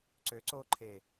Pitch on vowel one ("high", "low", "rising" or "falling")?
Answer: rising